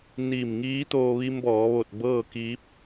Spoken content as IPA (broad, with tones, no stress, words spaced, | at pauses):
niː˧˩mŋiː˧˥t̪oː˧ ʋi˧mbɔː˩˧ʋo˧˩t̚ bɤː˥˨kiː˧˥p̚